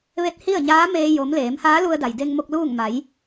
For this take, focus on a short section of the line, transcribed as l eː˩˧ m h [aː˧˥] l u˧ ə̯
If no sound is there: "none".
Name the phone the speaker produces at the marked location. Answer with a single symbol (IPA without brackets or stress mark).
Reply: aː˧˥